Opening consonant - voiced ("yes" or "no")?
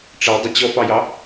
no